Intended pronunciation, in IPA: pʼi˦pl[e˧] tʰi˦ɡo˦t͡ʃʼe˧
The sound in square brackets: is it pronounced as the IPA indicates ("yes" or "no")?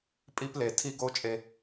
no